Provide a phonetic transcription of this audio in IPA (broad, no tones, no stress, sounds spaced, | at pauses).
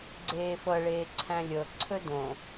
ɡ͡ǀ eː f ɤ ɭ eː ǀʰ æ̃ lʲ ɤ ǀʰ ɵ d õ